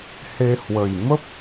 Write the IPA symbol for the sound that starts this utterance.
h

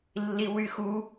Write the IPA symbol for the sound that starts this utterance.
lː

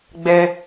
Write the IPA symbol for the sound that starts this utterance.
ɡ͡b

